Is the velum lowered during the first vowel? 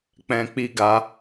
yes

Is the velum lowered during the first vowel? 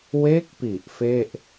no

